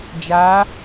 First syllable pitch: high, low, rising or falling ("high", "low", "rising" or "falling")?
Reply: rising